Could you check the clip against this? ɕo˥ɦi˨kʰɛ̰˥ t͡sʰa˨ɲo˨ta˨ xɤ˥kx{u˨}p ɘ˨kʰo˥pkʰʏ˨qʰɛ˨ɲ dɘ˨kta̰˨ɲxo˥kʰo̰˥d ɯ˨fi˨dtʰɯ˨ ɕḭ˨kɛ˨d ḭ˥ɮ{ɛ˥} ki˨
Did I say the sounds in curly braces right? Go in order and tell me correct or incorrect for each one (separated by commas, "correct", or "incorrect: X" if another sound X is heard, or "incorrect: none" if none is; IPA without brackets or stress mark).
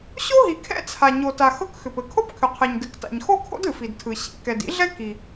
incorrect: ʏ˨, correct